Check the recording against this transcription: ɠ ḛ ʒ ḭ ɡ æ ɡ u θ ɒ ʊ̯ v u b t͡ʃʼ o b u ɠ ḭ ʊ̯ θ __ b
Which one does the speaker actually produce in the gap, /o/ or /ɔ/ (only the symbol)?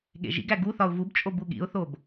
o